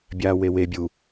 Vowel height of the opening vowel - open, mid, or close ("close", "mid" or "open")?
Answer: open